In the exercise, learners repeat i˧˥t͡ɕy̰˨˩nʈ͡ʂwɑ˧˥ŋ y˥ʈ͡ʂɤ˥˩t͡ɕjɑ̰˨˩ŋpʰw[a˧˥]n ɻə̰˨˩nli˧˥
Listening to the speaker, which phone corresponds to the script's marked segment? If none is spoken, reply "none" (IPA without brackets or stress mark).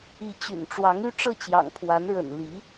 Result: a˧˥